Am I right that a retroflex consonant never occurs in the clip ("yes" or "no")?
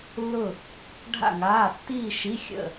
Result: no